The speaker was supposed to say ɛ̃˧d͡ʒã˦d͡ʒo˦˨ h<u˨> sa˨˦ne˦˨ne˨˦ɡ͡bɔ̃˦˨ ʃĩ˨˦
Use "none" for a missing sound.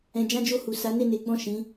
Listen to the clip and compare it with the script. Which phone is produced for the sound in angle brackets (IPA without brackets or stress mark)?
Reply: u˨